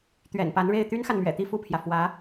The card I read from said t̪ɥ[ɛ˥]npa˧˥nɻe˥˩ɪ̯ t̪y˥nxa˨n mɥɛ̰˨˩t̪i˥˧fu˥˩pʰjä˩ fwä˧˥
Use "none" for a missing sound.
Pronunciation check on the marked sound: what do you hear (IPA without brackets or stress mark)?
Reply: ɛ̰˨˩